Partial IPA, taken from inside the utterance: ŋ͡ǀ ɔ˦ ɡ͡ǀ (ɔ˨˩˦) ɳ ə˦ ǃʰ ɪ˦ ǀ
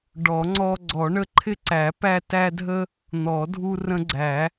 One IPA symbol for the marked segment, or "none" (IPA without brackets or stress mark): ɔ˨˩˦